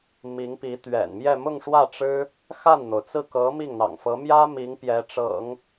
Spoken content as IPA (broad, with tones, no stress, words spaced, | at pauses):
mi˧˥ŋpi˧˥t̪ɥɛ̰˨˩nmjɛ˥˧ mʊ˥˧ŋʂwä˥˩ʈ͡ʂɻ̩˥ | xa˥˩nn̪o˩ʊ̯t͡sɹ̩˥˩ kɤ˧˥ mi˥˩ŋn̪ɑ̰˨˩ŋfɤ˧˥ mjä˥ mi˧˥ŋ pjɛ˧˥ʈ͡ʂɤ̰˨˩˦ŋ